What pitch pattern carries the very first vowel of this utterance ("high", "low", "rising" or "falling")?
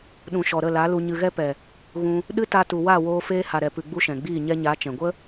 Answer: low